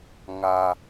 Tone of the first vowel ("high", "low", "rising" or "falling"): low